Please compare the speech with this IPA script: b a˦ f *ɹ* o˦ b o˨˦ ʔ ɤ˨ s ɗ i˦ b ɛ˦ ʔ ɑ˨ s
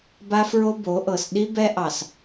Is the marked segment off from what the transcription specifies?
no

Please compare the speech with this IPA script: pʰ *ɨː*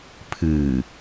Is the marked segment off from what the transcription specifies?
no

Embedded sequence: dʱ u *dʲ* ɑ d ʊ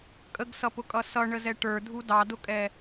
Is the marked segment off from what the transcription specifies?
yes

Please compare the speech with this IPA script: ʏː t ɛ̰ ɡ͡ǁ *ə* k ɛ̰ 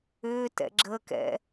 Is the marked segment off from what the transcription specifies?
no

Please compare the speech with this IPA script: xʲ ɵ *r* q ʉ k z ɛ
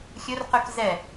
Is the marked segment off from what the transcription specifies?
no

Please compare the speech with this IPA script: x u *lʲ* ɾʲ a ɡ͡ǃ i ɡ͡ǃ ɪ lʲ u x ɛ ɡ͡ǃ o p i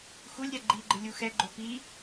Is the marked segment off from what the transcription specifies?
no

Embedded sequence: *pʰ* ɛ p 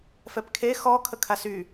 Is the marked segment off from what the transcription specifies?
yes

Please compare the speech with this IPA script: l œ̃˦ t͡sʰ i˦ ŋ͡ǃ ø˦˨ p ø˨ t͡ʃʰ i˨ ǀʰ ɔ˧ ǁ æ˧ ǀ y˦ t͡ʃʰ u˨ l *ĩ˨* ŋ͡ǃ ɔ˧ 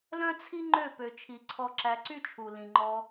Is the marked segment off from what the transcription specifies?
no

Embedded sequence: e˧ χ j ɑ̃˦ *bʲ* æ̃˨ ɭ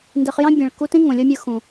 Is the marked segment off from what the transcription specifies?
no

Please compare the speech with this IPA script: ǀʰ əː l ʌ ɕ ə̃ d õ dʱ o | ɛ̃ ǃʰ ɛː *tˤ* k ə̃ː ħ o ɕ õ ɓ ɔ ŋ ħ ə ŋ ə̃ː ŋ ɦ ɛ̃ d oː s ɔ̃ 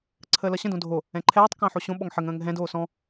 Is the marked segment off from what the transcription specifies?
no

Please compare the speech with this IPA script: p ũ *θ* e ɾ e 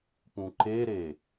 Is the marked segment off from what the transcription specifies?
yes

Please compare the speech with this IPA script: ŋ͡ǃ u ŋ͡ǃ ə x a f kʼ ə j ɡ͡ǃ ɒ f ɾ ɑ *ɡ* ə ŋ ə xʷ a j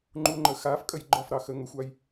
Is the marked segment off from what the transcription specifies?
yes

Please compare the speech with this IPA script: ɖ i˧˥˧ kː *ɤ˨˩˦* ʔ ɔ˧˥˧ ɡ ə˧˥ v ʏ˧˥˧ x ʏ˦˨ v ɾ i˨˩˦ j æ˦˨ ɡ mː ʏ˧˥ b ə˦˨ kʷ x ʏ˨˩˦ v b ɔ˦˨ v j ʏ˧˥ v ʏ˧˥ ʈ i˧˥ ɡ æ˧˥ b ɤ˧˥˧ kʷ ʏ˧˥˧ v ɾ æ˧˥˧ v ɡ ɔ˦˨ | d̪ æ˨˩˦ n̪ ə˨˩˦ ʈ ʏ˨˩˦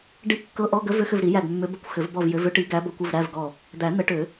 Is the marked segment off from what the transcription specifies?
yes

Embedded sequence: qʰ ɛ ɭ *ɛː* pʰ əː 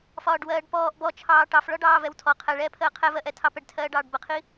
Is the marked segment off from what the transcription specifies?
no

